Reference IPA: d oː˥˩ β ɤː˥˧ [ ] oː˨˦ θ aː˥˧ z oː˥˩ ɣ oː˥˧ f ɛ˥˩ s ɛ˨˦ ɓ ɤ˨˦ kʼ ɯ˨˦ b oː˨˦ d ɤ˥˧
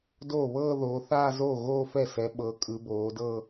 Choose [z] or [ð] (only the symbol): ð